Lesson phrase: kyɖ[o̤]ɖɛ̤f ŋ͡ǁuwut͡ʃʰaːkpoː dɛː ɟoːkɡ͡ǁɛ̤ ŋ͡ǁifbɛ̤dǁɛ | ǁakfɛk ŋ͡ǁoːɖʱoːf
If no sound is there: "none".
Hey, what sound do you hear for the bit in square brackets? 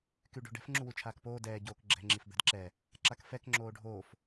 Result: o̤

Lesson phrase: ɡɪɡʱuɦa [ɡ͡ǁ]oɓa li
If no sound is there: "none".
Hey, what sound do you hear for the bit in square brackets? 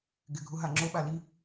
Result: ŋ͡ǁ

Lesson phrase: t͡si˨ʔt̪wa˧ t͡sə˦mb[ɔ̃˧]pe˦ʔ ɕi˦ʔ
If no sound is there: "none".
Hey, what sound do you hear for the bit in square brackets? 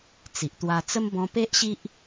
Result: ɔ̃˧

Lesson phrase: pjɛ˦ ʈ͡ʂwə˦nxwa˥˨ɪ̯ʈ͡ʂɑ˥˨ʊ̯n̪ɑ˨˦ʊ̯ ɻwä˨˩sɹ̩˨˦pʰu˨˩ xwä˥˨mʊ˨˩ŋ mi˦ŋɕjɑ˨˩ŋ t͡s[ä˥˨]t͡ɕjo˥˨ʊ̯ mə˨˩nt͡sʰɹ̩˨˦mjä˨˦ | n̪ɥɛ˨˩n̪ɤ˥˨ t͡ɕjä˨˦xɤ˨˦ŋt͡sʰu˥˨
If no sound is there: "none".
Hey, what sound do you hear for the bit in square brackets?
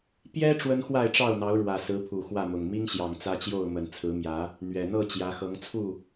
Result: ä˦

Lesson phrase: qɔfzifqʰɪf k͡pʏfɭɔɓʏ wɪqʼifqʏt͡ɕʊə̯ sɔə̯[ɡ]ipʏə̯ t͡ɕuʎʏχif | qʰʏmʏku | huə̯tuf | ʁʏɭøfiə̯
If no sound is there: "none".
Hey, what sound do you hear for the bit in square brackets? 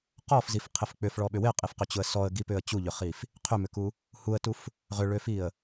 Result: ɡ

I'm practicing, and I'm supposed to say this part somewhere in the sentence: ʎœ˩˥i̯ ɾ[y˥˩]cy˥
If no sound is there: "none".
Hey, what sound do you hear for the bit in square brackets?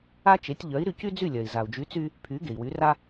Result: y˧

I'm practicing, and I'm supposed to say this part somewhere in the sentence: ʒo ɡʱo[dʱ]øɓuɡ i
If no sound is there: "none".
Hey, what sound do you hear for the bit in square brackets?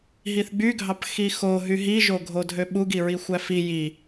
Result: dʱ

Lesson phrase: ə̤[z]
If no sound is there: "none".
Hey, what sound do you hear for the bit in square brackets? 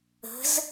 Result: z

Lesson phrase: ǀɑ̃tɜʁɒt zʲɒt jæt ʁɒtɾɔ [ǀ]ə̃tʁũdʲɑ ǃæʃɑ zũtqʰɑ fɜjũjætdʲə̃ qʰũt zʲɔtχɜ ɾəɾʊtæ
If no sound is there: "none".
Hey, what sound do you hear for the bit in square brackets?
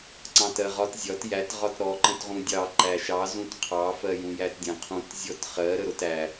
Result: ǃ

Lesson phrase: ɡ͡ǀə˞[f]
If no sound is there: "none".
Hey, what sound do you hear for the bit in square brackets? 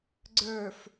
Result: f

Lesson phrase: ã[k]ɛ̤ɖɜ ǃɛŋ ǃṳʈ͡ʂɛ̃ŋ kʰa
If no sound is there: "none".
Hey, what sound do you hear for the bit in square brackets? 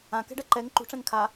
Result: k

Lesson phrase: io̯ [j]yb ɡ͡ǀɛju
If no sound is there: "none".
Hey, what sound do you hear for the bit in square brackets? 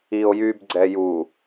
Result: j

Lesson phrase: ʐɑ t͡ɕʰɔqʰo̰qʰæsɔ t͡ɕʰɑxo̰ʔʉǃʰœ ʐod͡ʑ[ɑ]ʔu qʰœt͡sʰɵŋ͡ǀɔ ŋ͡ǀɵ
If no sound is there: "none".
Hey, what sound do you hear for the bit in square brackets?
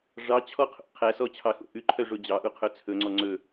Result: ɑ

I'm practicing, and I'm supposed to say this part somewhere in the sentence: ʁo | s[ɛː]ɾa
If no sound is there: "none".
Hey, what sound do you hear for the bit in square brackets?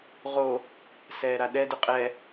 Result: ɛː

